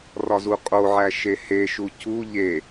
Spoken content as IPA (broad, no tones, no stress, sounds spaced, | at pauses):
r ɒ z u qʼ o ʕ æ ʃ e h e ʃ u c u ʎ e